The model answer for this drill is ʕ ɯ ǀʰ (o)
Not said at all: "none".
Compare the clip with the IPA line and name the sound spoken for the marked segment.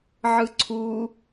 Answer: u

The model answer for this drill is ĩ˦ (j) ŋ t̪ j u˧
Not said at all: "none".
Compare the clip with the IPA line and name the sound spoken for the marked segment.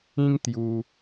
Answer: none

